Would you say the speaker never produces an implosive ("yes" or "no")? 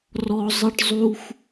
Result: yes